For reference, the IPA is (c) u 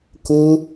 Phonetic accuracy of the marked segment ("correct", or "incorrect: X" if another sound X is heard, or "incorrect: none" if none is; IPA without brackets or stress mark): incorrect: k